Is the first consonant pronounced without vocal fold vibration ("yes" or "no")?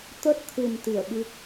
yes